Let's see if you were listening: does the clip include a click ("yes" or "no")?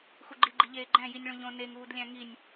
yes